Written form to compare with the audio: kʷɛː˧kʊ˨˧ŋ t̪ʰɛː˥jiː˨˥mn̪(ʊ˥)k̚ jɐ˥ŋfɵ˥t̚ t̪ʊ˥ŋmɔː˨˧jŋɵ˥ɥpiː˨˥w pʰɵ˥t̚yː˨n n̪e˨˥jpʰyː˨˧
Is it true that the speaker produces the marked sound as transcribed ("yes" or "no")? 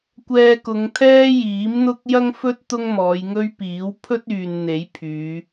yes